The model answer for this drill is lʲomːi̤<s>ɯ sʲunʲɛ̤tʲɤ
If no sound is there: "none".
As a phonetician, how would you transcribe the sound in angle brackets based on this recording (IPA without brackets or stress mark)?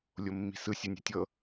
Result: s